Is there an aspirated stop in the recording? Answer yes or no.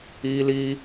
no